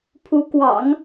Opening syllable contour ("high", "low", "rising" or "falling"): rising